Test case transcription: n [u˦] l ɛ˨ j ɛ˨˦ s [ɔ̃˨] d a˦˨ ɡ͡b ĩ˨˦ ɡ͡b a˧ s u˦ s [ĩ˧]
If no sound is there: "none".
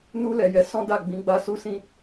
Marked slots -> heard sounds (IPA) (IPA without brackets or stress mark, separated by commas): u˧, ɔ̃˦, ĩ˦